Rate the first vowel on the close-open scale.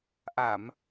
open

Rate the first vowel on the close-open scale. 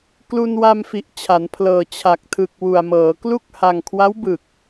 close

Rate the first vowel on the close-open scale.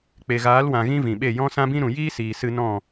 mid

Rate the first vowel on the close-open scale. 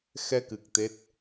mid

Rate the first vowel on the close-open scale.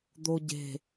mid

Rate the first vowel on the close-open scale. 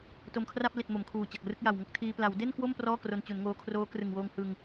mid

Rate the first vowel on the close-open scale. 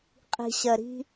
close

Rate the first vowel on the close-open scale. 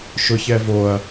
close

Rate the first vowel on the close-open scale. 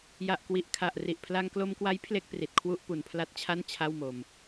open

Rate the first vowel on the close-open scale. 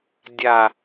open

